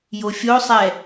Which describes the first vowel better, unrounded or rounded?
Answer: rounded